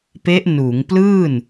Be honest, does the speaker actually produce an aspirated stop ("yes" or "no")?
no